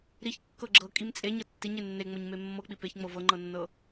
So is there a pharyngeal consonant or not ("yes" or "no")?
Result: no